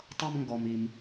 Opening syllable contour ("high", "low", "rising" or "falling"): high